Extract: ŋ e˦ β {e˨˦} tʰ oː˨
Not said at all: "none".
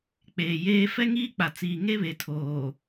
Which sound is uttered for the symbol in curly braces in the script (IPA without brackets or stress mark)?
e˨